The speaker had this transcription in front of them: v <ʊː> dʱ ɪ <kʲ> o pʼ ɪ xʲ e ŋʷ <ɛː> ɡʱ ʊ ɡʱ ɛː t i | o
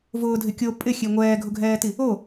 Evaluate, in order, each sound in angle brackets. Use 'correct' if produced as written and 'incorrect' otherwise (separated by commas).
correct, correct, correct